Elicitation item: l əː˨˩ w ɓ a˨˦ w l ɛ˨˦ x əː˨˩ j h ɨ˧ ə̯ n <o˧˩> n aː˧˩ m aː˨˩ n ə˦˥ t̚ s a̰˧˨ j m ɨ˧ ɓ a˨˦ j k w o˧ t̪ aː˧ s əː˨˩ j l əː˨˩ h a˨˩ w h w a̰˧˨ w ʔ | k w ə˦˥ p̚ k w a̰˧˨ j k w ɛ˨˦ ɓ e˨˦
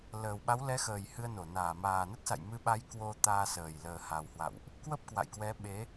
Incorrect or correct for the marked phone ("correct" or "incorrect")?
correct